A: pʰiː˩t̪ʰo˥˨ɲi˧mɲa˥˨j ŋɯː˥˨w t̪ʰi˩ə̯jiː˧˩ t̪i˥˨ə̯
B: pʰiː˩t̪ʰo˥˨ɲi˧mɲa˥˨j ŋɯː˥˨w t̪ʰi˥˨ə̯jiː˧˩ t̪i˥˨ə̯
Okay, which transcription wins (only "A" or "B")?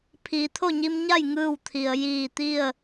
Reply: A